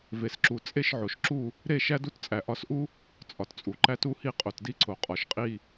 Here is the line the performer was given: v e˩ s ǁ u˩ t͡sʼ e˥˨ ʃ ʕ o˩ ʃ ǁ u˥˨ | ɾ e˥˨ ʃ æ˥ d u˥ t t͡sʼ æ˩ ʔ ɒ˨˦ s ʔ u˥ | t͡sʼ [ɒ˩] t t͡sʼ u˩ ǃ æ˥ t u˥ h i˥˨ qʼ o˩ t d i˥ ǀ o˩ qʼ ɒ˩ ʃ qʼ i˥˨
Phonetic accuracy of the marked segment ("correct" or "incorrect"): correct